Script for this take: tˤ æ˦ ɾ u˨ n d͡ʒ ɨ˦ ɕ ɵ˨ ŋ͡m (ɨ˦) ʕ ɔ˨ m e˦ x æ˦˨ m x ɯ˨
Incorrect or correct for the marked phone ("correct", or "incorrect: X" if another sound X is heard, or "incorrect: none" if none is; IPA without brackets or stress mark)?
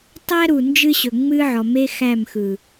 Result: correct